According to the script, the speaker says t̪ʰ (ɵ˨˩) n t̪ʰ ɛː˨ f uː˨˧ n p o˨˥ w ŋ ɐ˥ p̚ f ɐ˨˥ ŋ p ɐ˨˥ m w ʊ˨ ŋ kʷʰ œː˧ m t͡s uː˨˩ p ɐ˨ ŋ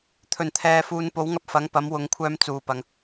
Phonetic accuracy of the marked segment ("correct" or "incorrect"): correct